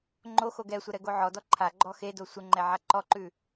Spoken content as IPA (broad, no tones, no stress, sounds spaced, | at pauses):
ŋ͡ǃ o x o ɡ ɛ sʷ ɛ ɾ ɛ ɡ o ʕ ɔ d ɔ ǃʰ a ɡ͡ǃ ɔ x e d o sʷ ə ŋ͡ǃ ɛ ʕ a ǃ ɔ ǃ ʉ